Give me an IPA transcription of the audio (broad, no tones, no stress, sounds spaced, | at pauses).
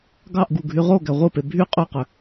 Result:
ɡ ɑ ʔ ɡ u ɡʱ y ʁ o ɡ æ ʁʷ ɯ p e bʱ y qʼ ø q ø